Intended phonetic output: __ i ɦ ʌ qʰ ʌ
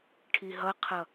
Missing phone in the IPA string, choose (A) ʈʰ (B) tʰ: A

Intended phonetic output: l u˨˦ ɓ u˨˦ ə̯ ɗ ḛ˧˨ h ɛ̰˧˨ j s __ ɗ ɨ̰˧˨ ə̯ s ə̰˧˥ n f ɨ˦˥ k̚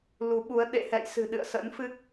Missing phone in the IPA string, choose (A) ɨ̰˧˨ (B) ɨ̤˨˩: B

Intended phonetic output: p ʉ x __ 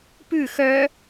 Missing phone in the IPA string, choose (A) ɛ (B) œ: B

